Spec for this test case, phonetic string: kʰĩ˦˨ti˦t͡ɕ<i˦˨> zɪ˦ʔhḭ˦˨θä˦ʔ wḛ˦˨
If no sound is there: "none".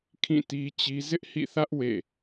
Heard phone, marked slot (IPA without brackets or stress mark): i˦